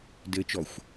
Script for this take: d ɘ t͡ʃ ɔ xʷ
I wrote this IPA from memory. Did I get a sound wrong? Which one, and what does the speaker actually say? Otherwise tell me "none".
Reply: none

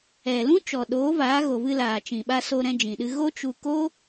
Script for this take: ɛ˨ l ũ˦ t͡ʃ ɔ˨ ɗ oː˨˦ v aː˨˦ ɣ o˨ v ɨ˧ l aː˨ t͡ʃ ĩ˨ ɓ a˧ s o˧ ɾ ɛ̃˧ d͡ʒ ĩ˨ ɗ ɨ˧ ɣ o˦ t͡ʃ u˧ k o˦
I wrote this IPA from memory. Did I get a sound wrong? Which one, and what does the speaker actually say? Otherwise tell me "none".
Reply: none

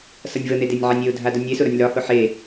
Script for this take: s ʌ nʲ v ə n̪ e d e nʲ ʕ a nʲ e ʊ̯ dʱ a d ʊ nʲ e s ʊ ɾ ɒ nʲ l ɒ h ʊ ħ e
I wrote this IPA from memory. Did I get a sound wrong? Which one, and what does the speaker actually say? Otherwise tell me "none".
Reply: none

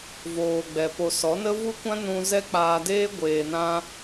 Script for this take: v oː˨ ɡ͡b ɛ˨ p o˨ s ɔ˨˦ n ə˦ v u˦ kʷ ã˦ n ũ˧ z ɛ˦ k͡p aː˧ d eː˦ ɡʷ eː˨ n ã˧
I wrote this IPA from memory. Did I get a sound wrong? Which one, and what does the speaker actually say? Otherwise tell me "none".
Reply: none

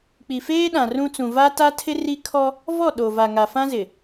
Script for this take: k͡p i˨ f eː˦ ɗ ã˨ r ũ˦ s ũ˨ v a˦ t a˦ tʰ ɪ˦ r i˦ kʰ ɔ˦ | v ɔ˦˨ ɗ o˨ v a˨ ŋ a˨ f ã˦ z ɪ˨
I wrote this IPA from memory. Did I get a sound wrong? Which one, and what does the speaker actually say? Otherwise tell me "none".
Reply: s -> t͡s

